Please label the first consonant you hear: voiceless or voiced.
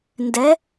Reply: voiced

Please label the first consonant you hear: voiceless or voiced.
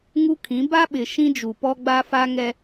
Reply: voiced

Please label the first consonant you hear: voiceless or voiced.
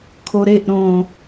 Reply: voiceless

